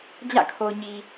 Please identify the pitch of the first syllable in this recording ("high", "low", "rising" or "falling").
falling